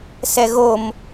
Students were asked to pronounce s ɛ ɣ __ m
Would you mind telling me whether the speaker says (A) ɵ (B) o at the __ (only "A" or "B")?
B